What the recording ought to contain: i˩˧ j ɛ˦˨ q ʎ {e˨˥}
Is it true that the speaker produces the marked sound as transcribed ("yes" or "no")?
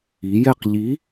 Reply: no